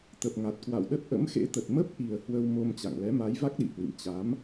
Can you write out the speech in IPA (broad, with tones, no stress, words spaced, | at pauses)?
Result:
t̪ə˨˩p̚ŋa˨˩t̚kwa̰˧˨wɗə˦˥t̚ ʔə̰˧˥mxḛ˧˥t̪ə˨˩t̚ mə˦˥p̚ʔi˨˩ə̯ hwə˧wmo˧m t͡ɕa̰˧˨ŋlɛ˨˦ ma˨˦jva˦˥k̚ɗḭ˧˨hwḭ˧˨m t͡ɕa˨˦m